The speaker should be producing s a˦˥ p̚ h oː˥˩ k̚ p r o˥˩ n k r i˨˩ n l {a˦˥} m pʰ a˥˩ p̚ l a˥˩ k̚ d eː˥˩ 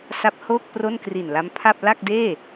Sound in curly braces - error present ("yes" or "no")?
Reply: no